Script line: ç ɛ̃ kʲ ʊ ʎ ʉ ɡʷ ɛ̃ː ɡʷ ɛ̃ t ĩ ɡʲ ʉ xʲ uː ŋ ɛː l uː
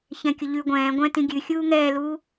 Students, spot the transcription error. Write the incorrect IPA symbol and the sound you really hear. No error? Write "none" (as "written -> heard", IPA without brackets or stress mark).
none